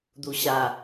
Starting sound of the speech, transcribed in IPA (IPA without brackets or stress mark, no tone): d̪